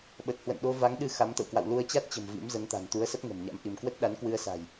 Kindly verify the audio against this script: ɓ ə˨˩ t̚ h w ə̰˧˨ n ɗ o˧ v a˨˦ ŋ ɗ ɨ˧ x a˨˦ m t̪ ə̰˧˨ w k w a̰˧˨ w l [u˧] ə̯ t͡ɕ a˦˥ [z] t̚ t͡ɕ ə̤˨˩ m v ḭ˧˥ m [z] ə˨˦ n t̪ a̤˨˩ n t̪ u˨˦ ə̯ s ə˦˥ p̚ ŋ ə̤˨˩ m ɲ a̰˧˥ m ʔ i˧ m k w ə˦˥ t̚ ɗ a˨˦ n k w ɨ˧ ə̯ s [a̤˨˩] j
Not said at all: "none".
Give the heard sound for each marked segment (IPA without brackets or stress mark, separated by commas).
u˧, none, z, a̤˨˩